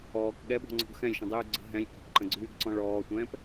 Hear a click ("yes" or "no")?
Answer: yes